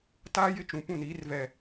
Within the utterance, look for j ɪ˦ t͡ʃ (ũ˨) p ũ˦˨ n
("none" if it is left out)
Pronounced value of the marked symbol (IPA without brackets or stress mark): ũ˨